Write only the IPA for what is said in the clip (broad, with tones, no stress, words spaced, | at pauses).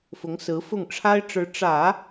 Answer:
fʊ˧˥ŋsɹ̩˧˥fʊ˥˩ŋ ʈ͡ʂʰa˥ɪ̯ʈ͡ʂɻ̩˧˥ ʈ͡ʂä˨˩˦